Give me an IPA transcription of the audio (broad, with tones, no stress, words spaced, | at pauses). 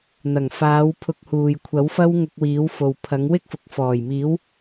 n̪ɐ˨˩ŋfaː˨˧wpʰʊ˨˥k̚ huː˨j kʷʰɐ˨˥w fɐ˥w ŋʊ˧k̚wiː˨˥wfo˨wpʰɐ˨˥ŋ wɪ˥k̚fʊ˨k̚fɔː˨˩jmiː˨˥w